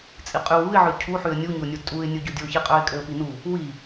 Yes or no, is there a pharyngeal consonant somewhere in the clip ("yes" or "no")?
yes